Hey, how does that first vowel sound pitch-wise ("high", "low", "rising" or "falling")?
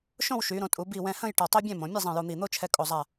falling